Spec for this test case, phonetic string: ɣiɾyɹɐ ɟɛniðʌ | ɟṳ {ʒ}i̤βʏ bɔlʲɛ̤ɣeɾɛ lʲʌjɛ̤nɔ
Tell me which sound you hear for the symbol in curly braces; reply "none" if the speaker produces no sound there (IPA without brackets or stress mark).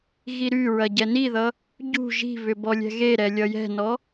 ʒ